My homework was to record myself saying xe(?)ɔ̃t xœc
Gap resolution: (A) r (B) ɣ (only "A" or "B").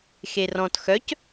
A